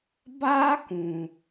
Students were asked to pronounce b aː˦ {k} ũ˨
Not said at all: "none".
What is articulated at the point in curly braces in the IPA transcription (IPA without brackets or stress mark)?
k